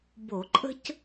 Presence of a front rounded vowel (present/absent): absent